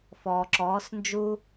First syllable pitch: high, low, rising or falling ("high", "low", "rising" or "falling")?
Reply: low